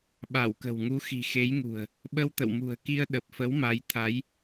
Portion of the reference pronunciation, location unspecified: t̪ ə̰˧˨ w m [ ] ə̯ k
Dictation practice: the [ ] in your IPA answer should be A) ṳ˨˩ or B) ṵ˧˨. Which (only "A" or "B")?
A